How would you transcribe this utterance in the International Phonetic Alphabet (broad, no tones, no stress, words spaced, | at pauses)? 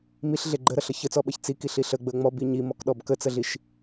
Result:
miɬɮe ɡ͡ǃəɾʌɬʌ çət͡sɔɓʌç t͡sikiɬi ɬəɡ͡bə ŋ͡mɔbi ɲimɔkɗɔb kət͡səɮiʃ